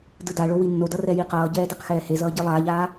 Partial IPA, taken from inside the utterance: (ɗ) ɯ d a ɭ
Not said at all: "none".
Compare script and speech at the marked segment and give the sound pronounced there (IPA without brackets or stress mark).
d